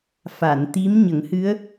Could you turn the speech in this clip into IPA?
fa˨˩˨nt̪i˧˥m ɲə˨˩˦ŋhɨ˧˥ə̯

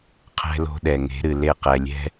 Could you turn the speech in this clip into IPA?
qʰɛ̤˦lo̤˦ɗɛ˨ ŋe̤˨˦ɾɨ˨ le˦˨qɛ˨lʲɛ̤˦

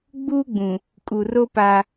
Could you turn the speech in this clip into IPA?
ɡ͡buː˦ɡ͡bũ˨ | kʼu˨ro˦ pa˦

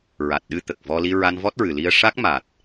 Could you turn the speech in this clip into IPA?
ɹa˨˩t̚ɗɨ˧ t̪ə˨˩k̚vɔ˧ li˧ɹa˧nvɔ˦˥t̚ɹɨ˨˩ li˧ə̯ʂa˦˥k̚ ma˨˩t̚

